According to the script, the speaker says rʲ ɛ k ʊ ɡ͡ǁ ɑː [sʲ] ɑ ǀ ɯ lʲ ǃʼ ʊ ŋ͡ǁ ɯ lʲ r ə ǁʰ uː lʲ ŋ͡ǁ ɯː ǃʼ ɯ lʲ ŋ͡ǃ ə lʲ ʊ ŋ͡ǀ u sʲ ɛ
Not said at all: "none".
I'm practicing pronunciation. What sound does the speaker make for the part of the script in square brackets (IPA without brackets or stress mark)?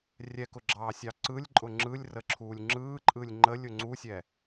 sʲ